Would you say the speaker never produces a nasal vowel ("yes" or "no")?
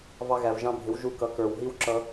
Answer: no